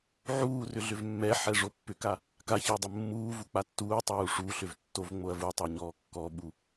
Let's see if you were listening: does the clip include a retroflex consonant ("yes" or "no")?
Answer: yes